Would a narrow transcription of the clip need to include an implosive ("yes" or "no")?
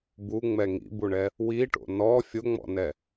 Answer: no